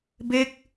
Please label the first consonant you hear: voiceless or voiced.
voiced